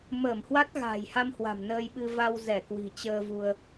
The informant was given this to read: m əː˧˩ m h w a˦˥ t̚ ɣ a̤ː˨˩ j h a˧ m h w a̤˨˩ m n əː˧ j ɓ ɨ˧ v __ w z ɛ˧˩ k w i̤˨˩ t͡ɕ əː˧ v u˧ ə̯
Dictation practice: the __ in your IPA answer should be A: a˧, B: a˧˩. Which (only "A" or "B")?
A